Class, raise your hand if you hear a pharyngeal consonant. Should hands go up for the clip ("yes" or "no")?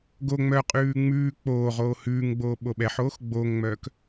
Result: yes